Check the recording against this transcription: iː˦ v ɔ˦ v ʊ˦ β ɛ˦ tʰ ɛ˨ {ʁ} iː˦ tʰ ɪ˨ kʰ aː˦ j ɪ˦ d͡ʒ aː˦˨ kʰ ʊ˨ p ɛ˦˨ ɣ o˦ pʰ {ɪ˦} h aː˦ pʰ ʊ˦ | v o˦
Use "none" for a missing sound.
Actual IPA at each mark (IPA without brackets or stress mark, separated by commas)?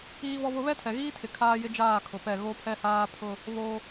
ɣ, ɛ˦